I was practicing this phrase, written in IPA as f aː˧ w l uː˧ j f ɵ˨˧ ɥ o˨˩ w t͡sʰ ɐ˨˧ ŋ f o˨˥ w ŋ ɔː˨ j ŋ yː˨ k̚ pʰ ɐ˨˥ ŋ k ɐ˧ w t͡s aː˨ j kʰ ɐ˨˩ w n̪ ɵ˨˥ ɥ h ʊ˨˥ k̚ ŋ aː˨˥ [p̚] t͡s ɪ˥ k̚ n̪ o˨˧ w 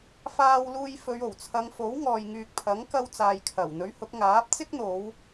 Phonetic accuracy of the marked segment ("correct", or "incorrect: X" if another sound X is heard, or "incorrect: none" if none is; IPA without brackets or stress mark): correct